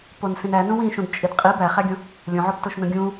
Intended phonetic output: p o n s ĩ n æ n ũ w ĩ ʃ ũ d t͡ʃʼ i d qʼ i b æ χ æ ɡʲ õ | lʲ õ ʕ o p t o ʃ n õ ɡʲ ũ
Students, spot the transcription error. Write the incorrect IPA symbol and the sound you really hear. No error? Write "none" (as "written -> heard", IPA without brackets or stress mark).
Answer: none